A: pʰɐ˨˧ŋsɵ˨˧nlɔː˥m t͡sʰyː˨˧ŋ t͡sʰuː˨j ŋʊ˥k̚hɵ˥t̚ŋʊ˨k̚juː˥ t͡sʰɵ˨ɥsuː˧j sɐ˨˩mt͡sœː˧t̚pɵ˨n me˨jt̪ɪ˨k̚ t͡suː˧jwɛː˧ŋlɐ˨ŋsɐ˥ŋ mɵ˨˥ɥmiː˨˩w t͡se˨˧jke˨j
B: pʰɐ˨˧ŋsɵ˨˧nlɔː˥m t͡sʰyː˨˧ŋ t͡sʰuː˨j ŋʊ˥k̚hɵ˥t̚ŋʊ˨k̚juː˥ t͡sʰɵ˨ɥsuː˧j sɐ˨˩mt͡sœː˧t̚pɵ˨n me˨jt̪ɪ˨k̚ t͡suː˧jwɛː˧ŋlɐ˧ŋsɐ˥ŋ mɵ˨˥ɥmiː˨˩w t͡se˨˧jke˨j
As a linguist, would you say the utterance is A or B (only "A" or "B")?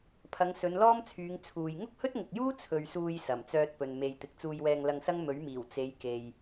B